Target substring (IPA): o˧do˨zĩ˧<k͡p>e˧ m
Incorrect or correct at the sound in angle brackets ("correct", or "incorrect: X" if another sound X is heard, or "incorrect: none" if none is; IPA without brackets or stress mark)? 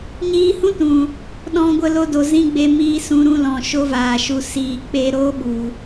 incorrect: ɡ͡b